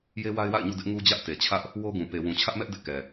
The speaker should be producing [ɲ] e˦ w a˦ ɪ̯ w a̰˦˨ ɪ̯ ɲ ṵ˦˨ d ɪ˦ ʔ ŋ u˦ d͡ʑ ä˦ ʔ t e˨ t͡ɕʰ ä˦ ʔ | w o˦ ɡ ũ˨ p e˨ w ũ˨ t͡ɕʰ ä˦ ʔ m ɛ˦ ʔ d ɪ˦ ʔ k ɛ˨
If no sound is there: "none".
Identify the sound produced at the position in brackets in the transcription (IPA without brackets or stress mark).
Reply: j